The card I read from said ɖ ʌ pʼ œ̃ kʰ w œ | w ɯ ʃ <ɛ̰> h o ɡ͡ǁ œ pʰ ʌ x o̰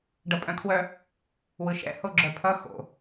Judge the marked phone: correct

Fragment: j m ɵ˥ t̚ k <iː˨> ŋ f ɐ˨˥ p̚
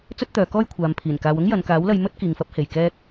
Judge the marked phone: correct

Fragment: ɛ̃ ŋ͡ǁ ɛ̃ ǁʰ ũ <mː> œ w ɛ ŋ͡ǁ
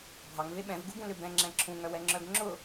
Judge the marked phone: incorrect: ŋ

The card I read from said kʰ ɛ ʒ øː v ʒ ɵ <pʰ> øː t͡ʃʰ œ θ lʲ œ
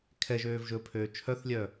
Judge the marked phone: correct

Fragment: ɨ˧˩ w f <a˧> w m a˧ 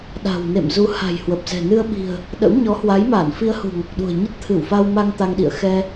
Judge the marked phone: correct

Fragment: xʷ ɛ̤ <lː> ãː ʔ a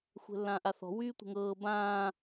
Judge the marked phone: correct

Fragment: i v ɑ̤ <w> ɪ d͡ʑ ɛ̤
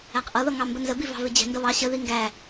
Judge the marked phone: incorrect: v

